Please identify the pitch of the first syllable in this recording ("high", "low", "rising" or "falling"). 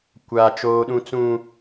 low